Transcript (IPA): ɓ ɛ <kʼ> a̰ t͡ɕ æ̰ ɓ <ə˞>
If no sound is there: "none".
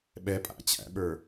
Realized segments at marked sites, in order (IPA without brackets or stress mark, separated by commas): pʼ, ə˞